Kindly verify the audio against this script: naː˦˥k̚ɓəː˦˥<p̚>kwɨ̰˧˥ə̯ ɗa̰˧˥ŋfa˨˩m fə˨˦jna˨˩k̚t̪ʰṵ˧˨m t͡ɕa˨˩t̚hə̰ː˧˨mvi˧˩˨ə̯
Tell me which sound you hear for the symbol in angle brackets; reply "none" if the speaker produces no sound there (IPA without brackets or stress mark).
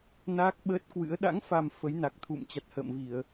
t̚